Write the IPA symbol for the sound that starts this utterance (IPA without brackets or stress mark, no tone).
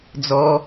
d͡z